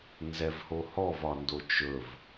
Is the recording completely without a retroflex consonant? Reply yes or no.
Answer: yes